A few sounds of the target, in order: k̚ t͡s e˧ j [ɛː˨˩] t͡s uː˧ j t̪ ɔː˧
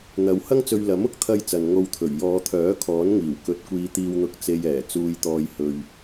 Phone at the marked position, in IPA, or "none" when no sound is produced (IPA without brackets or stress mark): ɛː˨˩